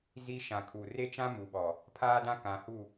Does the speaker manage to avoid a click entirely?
yes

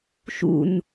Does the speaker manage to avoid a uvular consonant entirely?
yes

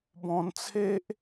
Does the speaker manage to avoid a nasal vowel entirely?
no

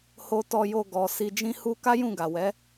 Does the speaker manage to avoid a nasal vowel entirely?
no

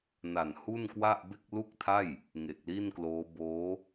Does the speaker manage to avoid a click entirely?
yes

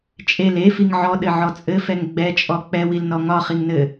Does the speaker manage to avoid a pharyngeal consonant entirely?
no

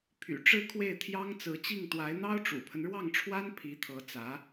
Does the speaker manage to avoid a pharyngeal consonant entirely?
yes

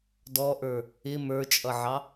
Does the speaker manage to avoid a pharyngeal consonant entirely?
no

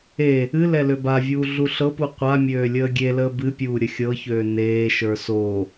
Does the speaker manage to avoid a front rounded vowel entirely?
no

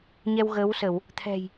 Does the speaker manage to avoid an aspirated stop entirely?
no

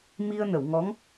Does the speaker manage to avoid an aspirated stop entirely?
yes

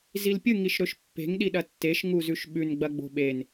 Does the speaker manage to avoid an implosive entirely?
no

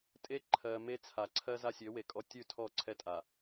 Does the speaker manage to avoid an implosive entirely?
yes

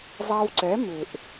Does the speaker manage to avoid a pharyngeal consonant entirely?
yes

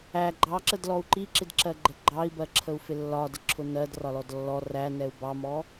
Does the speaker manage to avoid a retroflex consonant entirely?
yes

